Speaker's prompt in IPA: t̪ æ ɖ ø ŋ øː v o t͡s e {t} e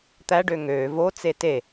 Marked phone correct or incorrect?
correct